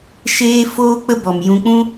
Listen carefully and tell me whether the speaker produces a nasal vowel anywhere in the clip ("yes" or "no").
yes